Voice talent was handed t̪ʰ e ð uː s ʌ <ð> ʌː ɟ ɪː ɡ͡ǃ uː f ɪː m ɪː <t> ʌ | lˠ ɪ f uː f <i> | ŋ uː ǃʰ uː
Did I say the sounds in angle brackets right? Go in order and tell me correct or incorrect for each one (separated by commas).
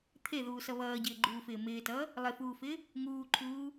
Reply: incorrect, correct, incorrect